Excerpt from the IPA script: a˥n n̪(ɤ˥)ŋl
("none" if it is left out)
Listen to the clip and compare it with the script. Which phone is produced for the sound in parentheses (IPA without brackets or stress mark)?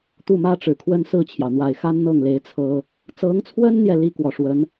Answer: ɤ˥˩